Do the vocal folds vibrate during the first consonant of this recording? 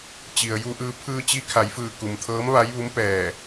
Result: no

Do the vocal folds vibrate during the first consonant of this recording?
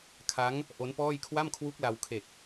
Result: no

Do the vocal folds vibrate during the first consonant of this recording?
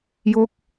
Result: yes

